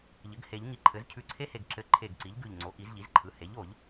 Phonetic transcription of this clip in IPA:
ʎɘ˩˥ɡhe˨˩˦ʎŋi˧˩ǃʰɘ˩˥z cʰʉ˧˩ǀʰe˥he˧˩ɡ ǁɘ˧˩ ǃʰe˧˩ɡǀi˩˥ʎɡʉ˧˩ʎ ŋ͡ǀo˩˥ʔi˨˩˦zʎi˩˥zǃʰɯ˩˥ he˩˥ʎo˨˩˦ʎ

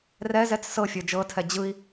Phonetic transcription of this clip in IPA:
rɛzɛt͡s sɤfʲə˞ d͡ʒɤtʰɛ d͡ʑɯi̯

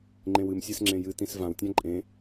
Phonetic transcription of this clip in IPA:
ŋ͡ǃẽwɨmsʲæs ŋ͡ǁẽjɨtĩs vãwtʲã ǃʼẽ

